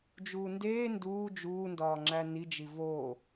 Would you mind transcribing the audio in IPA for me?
d͡ʒuːndeː nduː d͡ʒuːndɒːŋ͡ǁæ nid͡ʒi vo

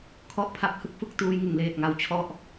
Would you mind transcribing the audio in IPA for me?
kʰɔ˥˩ʔ pʰa˦˥p̚hɯ˥˩k̚fɯ˦˥k̚ tuː˦˥jŋɯ˨˩ŋleː˨˩t̚ ŋa˧wt͡ɕʰɔ˥˩ʔ

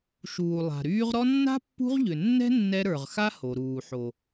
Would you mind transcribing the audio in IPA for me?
ʃuː˨lˠa̤˨ɾyː˦ʁ ɾɔ˦nːa̤˥pːṳ˦ʁ ʎʏ˨nːɛ̤˥ nːɛ˦ɾə˞˨ʁxa˥ho˩ ɾuː˨ħo˨

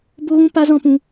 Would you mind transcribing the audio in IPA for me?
bo˦ɣũ˦ pa˦zɔ̃˦pũ˧

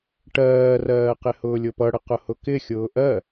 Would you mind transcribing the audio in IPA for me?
ʈɜːrɜːqɪ hʊːlʲʊpʌɽə qʊhʊkɪ xʲʊːʔɜ

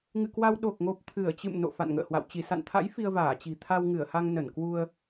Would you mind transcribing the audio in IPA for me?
ŋɨ̰˧˨ kwa˧w ɗo˨˩k̚ŋo˨˩p̚ t̪ʰɨ˧˩ə̯t͡ɕɨ̰˧˨mno̰˧˨ fa̰˧˨nŋə̰ː˧˨hwa̰˧˨w t͡ɕi˧˩sa̰˧˨nt̪ʰa̰˧˥j fi˧ə̯vaː˧˩t͡ɕi̤˨˩ t̪ʰa˧wŋɨ˧˩ə̯ha˧ŋ nə˧˩nkwu˧ə̯

